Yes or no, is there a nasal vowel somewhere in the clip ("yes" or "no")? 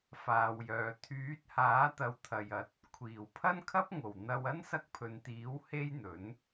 no